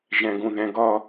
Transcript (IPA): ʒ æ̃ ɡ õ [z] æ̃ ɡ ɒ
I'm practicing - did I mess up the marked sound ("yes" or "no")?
yes